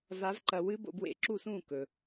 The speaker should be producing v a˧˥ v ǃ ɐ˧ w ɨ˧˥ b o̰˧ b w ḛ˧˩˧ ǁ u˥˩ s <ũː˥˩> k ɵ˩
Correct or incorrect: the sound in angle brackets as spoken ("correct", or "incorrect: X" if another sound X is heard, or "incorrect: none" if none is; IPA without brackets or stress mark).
correct